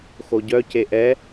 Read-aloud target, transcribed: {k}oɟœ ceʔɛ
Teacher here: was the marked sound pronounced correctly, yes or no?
no